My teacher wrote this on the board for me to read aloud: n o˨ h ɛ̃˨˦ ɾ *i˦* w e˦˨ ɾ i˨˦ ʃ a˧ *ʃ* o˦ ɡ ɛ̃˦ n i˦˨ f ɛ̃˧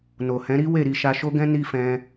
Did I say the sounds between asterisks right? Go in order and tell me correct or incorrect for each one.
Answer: correct, correct

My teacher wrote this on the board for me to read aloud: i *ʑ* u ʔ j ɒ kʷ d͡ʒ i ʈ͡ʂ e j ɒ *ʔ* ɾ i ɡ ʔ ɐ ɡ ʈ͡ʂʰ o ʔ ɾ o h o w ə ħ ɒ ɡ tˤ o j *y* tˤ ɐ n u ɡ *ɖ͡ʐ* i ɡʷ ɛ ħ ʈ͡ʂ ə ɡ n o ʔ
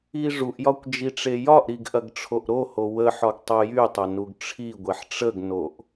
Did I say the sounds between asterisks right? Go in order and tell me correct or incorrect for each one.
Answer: incorrect: ʐ, correct, correct, incorrect: ʈ͡ʂʰ

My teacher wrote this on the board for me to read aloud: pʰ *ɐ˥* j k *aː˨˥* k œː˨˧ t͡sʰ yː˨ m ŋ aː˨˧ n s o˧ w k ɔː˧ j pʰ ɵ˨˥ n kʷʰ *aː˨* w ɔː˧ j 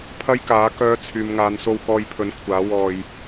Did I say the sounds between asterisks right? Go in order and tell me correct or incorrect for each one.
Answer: correct, correct, incorrect: aː˨˥

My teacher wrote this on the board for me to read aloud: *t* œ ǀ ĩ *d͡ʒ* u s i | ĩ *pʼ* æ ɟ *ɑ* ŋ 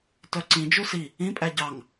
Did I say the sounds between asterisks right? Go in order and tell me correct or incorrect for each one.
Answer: correct, correct, correct, correct

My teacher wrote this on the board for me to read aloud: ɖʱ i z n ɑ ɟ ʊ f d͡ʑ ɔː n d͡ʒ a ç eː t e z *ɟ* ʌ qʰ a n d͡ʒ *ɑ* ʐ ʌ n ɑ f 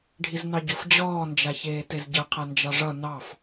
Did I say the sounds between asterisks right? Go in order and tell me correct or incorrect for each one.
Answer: correct, correct

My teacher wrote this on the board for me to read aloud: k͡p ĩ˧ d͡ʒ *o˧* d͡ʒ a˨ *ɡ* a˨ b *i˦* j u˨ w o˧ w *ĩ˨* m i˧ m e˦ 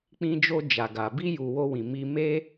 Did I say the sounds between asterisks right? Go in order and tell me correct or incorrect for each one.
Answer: correct, correct, incorrect: i˧, correct

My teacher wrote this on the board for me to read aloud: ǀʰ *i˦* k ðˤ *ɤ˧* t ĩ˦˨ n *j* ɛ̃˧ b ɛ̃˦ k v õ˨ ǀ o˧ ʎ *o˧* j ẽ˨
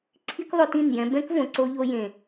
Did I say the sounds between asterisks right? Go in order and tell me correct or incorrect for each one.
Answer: correct, incorrect: o˧, correct, correct

